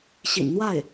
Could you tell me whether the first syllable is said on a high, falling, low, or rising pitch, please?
low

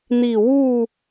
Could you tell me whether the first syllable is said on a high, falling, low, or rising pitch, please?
falling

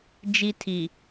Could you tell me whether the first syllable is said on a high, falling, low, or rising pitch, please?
high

